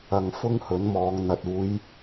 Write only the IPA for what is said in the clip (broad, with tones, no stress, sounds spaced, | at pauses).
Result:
ɐ˧ ŋ f ʊ˥ ŋ h ɵ˨˥ n m ɔː˨˧ ŋ n̪ ɐ˨ t̚ uː˨˧ j